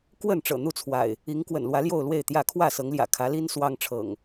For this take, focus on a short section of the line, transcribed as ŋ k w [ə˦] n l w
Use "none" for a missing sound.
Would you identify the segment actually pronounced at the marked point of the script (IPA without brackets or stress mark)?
ə̰˨˩